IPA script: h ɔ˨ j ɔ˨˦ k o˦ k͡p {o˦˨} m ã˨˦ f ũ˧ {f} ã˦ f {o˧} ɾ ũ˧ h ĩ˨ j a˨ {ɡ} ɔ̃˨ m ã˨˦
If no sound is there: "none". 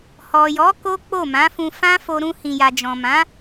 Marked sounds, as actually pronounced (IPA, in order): o˦˨, f, o˧, d͡ʒ

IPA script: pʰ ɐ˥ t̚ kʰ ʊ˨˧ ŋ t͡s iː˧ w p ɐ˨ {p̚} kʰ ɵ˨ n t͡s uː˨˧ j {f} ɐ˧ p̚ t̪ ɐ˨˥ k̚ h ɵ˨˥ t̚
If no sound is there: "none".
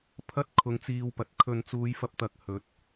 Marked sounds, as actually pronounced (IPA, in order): t̚, f

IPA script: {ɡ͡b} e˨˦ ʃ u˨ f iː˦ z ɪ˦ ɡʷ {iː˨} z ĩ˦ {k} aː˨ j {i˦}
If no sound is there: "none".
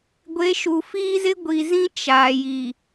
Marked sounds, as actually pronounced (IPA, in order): ɡʷ, i˨, t͡ʃ, i˨

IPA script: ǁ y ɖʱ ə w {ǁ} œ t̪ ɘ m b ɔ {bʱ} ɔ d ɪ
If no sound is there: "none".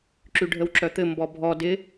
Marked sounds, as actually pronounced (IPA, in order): ǁ, bʱ

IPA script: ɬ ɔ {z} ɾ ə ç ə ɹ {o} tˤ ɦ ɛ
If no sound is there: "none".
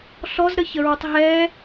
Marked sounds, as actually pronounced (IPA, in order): z, u

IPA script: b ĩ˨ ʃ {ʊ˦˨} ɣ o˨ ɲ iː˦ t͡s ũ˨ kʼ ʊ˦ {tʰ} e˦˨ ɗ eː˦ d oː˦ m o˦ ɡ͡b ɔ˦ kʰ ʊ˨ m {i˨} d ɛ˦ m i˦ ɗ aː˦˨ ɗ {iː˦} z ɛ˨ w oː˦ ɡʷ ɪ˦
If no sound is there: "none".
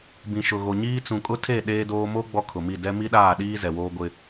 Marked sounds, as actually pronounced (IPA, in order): ʊ˨, tʰ, i˦˨, iː˦

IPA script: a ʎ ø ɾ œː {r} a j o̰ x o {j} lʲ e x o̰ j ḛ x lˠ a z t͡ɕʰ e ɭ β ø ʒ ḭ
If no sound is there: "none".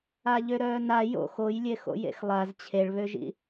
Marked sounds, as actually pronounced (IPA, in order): n, j

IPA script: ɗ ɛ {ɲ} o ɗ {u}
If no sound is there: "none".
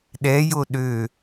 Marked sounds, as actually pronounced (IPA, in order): j, ø

